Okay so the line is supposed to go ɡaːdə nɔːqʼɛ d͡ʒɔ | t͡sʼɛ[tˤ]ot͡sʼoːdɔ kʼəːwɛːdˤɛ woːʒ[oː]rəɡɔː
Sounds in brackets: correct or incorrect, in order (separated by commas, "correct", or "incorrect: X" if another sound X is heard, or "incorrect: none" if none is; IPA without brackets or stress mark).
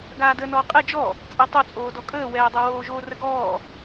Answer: correct, correct